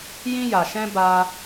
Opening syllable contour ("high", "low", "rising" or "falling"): high